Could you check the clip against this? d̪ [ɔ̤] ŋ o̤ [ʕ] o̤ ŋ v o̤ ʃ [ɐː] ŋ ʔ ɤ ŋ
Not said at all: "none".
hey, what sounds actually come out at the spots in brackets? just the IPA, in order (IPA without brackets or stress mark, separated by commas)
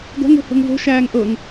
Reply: ɔ̤, h, æː